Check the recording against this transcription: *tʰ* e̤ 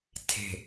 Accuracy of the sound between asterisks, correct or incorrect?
correct